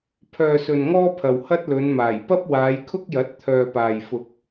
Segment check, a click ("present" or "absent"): absent